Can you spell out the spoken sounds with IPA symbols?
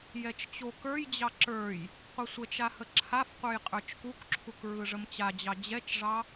j ɛ t͡ʃ t͡ɕ o k ə˞ j d͡ʑ ɑ ǁ ə˞ j | qʷ ɯ sʷ ə t͡ʃ a h ə ǁʰ a f qʷ ə˞ j qʼ ə˞ t͡ʃ k u k ǁʰ u k ɹ ɯ ʐ ə m t͡ɕ a d͡ʑ ɑ d͡ʑ ɛ t͡ʃ ʐ ɑ

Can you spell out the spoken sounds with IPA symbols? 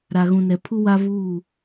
ɾ a˨ ɣ ũ˨ n ɛ˨ pʰ u˦ w a˦ v uː˦˨

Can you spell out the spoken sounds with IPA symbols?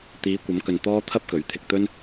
t̪ iː˨˧ kʷ ɐ˨˧ m k ɵ˨ n t̪ ɔː˥ t̪ʰ ɐ˥ p̚ k ɵ˨˥ ɥ t̪ʰ ɪ˧ k̚ t̪ ɵ˥ n

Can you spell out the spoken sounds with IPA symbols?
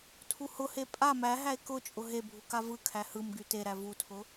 tʰ u h ʊ h e pʼ a m æ ɦ æ e̯ k ʊ t͡ʃʼ ʊ ɦ e bʱ u k a v ɯ kʰ æ h ɯ m ɡ y t e ɾ æ v u tʰ ʊ

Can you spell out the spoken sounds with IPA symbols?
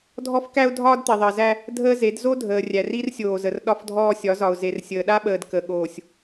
dʱ ɔ˦ f k æ˦ ʊ̯ dʱ ɒː˦ d t̪ i˨ ðˤ ɜ˨ z æ˦ | dʱ əː˦ z e˨˦ d z o˦ dʱ əː˨ rʲ æ˨ r i˦ r sʲ oː˨ z ə˨ r ɗ ɒ˦ f dʱ ɔː˦ sʲ ɒ˨˦ z ɒ˨ ʊ̯ z e˨ r sʲ əː˨ ɗ a˦ ɓ əː˨ d k ə˨ ɠ oː˨ sʲ

